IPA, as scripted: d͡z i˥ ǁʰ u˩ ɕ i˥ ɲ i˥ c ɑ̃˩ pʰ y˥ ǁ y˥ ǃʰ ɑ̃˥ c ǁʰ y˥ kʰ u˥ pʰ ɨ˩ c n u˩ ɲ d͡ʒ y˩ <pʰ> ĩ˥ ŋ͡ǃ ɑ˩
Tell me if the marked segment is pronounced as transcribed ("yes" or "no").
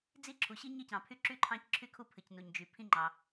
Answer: yes